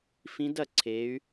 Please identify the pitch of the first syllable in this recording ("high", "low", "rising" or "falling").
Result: rising